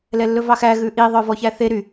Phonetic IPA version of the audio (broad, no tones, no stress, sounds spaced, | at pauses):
l ɛ lː ɵ v ɑ x æ ɣ ʉ ʔ i ðˤ œ v ɔ ç æ θ e ɾ y